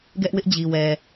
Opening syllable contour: high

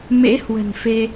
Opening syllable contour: rising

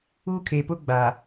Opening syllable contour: high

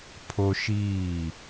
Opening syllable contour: high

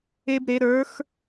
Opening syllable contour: high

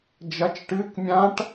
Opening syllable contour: rising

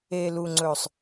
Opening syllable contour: low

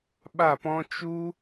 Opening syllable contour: falling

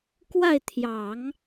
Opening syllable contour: falling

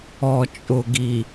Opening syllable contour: low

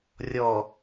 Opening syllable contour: low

